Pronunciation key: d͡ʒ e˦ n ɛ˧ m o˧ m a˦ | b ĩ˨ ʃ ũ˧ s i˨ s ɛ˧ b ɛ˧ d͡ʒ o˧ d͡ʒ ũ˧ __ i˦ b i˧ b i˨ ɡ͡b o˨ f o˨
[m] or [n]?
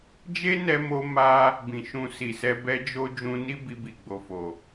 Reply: n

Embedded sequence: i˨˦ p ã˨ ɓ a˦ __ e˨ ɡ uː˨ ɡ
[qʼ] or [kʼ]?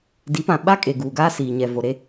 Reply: kʼ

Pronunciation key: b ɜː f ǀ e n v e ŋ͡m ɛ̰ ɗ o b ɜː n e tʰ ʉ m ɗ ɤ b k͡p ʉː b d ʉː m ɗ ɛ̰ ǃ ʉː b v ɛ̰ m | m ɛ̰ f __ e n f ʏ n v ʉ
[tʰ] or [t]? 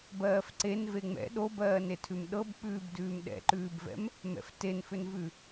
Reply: t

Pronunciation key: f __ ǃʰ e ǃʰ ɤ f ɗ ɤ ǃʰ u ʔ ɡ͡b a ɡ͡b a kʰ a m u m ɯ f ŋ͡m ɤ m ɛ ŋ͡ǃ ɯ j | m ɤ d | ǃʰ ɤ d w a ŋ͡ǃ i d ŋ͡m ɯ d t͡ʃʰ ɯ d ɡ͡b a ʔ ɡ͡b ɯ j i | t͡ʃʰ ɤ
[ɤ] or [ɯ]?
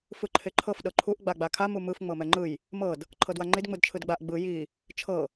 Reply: ɯ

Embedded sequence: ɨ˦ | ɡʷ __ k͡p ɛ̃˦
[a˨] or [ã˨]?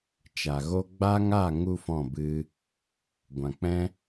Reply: ã˨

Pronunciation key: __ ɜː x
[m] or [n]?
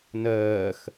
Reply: n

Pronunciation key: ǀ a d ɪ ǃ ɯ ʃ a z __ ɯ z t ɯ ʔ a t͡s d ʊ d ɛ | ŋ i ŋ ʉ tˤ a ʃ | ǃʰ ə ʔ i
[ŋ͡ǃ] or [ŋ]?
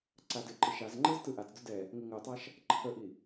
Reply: ŋ͡ǃ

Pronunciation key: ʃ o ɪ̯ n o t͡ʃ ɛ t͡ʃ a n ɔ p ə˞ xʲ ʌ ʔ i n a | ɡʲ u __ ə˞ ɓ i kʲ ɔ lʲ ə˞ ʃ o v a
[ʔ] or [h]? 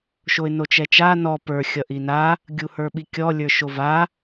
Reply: h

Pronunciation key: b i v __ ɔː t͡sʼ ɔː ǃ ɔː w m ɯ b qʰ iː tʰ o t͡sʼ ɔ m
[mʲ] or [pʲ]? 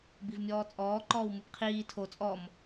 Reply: mʲ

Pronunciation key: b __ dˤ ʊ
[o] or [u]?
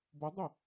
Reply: o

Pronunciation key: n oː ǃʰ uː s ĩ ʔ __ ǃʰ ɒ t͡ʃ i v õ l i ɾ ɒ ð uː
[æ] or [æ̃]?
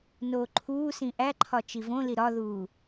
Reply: æ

